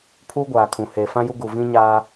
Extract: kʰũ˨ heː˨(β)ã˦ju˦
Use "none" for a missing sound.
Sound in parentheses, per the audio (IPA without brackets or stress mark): f